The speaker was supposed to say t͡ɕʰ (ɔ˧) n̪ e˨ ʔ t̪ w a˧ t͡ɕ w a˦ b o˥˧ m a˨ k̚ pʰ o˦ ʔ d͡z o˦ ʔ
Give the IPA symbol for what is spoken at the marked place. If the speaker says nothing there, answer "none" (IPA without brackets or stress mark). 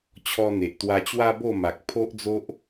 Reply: ɔ˧